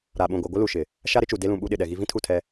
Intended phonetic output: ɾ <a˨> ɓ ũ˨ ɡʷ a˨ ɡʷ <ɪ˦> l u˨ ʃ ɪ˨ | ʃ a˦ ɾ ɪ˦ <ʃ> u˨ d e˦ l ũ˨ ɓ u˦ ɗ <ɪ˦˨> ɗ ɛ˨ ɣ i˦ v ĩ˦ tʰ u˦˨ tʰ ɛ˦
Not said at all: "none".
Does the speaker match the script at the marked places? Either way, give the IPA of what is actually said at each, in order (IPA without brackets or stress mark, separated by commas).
a˨, ɪ˦, t͡ʃ, ɪ˨